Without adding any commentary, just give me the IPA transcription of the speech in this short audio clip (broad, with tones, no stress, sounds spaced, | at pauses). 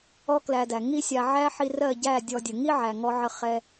ɔ˦ k l æ˧ d æ˨ ŋ i˦ sʲ a˧ ʕ æ˦ ħ i˧ r ɜ˦˨ ɟ æ˦˨ dʲ ɔ˧ dʲ ə˨ ŋ i˦ ʕ æ˨ ŋ ɔ˧ ʕ ə˧ χ ɛ˧